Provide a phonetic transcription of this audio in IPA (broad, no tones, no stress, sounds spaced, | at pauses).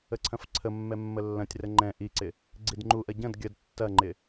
ə ǀʰ ɐ̃ f ǀʰ ə mː ɛ mː ə lː ɐ̃ tʲ r ə ŋ͡ǃ ɛ̃ ʔ i ǀ ɪ | ɡ͡ǀ i d ŋ͡ǃ u ʔ ɐ ɟ ɐ̃ d ɡʲ ə d tː ɐ ŋ͡ǃ ɪ